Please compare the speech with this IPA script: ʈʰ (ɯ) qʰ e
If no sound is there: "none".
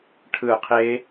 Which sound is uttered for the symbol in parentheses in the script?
ɯ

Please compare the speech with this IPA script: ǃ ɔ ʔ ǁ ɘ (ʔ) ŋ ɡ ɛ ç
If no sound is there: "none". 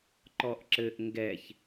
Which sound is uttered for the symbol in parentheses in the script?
ʔ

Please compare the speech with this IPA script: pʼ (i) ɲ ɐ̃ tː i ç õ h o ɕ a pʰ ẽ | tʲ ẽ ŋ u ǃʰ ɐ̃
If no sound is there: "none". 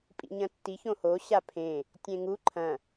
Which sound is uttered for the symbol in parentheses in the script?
ḭ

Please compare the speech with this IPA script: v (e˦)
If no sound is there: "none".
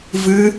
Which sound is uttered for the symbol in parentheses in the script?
ɨ˦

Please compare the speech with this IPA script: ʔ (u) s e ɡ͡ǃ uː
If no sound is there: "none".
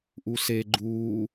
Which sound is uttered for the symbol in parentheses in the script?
u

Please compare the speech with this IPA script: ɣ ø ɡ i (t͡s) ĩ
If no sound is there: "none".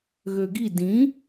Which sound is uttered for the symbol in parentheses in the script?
d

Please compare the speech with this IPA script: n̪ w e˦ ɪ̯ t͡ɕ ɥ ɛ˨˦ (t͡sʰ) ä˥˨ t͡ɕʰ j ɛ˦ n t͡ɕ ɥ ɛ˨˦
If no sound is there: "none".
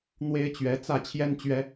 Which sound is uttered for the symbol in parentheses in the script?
t͡s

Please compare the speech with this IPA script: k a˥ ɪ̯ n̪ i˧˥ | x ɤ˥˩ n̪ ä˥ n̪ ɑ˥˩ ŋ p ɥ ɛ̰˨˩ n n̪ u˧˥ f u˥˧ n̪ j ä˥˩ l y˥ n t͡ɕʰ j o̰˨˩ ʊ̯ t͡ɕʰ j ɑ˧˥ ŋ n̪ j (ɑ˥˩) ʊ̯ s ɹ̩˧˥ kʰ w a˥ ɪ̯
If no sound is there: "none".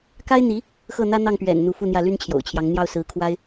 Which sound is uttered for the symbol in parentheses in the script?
ɑ˥˩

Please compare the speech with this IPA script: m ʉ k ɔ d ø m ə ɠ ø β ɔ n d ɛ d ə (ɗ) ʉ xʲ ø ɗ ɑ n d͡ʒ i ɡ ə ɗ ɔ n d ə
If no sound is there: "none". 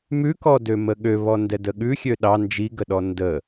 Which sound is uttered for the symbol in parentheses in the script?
ɠ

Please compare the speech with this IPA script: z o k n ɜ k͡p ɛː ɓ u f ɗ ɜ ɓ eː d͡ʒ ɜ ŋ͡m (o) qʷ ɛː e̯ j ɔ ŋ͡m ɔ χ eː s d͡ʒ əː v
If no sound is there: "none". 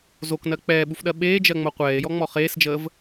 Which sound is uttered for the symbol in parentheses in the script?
o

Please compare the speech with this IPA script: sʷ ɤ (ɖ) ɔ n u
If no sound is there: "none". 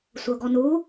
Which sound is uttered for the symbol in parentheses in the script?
ɡ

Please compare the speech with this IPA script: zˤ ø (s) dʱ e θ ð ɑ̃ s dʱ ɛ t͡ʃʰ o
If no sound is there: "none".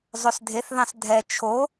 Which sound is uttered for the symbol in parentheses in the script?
s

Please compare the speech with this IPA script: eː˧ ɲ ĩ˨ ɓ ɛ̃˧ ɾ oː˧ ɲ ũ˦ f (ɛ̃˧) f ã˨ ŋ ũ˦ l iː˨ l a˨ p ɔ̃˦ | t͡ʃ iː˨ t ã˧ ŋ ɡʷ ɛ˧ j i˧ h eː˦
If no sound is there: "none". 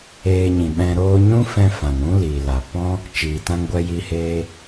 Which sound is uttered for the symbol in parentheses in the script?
ɛ̃˧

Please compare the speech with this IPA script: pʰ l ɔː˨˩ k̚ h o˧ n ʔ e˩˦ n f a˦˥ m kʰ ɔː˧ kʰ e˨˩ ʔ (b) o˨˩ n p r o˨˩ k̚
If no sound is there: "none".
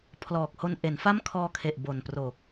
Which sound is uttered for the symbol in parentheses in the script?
b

